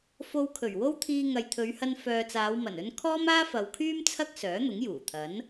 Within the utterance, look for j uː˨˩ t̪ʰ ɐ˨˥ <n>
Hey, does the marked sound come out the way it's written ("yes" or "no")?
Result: yes